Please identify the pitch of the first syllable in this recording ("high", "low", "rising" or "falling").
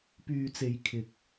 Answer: low